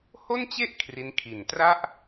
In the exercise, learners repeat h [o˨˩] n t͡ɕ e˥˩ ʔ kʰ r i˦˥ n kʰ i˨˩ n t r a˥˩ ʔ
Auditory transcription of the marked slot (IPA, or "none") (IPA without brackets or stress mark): o˥˩